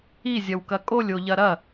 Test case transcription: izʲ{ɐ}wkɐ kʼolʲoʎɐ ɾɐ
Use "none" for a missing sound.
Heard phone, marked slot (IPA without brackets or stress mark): ɐ